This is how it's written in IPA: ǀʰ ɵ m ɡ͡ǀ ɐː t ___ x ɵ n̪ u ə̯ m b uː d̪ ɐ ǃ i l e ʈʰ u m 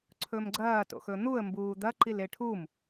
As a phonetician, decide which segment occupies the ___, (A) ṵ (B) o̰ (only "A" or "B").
B